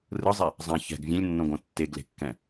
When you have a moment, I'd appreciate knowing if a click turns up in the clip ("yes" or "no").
no